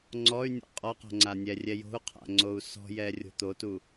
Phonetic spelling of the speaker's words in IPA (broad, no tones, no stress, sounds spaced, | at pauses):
ŋ͡ǀ ɔ y̯ nʲ ɔ̰ qʼ ɔ q ɔ̤ ŋ͡ǀ a nʲ ɛ rʲ ɛ j o̤ u̯ qʰ a̰ ŋ͡ǀ o u̯ s ɔ̤ j ɛ rʲ o̤ t̪ o t u